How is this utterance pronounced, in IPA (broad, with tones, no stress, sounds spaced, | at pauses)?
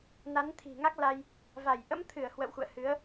n a˨˦ n t̪ʰ i̤˨˩ ŋ a˦˥ k̚ l a˧ j | v a˧˩ j ʔ ə̰˧˥ m t̪ʰ ɨ˧˩ ə̯ h w ə̰˧˨ w x ṵ˧˨ ə̯ h ɨ˨˦ ə̯